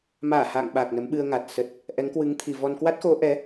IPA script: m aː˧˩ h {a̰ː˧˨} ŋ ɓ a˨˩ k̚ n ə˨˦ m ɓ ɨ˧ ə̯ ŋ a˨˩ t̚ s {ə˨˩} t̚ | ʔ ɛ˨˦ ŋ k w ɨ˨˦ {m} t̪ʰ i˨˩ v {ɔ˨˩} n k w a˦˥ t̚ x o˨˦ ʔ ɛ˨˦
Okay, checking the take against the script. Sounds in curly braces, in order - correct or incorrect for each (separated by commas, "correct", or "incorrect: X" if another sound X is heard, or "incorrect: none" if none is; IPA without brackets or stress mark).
correct, correct, incorrect: ŋ, incorrect: ɔ˧